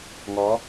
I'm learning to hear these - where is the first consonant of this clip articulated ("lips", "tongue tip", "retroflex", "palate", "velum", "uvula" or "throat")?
velum